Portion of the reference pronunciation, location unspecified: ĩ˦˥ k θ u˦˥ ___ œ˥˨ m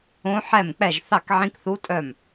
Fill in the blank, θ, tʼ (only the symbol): tʼ